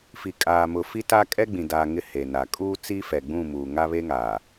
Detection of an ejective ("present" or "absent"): present